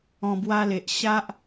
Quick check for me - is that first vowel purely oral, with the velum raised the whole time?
no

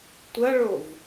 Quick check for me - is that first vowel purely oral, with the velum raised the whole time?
yes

